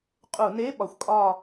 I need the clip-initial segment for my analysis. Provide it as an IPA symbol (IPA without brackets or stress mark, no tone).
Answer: qʼ